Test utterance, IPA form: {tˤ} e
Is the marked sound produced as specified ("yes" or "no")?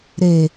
no